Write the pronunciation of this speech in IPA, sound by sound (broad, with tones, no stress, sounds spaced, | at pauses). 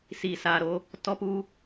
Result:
s iː˨ s aː˨ ɾ o˧ | t ɔ˧ p u˧